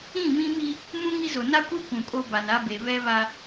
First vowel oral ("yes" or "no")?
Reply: no